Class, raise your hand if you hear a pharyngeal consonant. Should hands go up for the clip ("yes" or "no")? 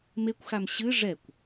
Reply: no